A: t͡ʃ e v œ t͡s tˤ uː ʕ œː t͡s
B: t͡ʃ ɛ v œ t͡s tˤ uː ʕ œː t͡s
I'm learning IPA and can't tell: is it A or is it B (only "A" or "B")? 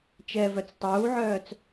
B